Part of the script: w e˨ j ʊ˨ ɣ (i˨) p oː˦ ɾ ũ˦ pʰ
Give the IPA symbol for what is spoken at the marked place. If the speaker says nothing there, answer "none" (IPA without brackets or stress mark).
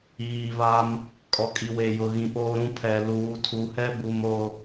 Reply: ĩ˨